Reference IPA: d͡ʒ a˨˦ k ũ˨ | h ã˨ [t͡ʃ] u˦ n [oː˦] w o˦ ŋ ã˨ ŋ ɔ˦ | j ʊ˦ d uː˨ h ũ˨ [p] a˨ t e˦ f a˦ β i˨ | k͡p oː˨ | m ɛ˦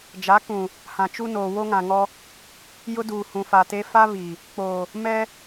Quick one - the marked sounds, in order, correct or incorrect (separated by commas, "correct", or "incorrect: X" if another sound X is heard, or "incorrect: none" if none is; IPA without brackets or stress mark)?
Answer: correct, incorrect: oː˨, incorrect: f